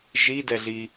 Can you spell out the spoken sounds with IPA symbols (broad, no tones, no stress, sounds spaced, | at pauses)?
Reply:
ʒ i d ɛ ɮ i